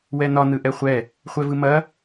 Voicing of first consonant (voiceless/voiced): voiced